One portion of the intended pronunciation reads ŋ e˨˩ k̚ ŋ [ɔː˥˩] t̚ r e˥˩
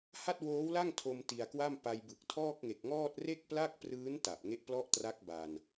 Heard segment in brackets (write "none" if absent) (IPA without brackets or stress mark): ɔː˥˩